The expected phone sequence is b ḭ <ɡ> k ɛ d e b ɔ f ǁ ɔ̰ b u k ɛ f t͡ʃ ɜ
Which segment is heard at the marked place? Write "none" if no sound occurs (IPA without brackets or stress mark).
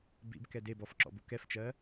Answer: b